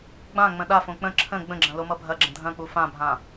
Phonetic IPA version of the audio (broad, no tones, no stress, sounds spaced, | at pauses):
ɡ͡b ã ŋ͡m ə̃ ɗ a f õ k͡p ə̃ ǁʰ ə̃ ɡ͡b ə̃ ɡ͡ǁ ɐ̃ l o m ʌ bʱ ɐ ɡ͡ǁ ə̃ dʱ ɐ̃ k͡p u f ã bʱ ã